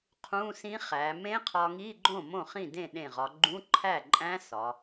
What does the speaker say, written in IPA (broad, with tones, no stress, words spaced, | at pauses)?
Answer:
qʰũ˧˥˧sĩ˦˥χæ˩˧ mẽ˦˥qʰɒ˧ŋi˧˥˧ɡ͡ǃõ˥˩ mõ˥˩χĩ˥˩dẽ˥˩ ɗẽ˧˩ʁɒ˩˧ ɡ͡ǃũ˧˥˧ǃʰæ˥˩ǃʼæ̃˦˥ sɒ˩˧